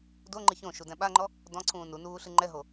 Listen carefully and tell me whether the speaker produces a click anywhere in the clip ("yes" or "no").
yes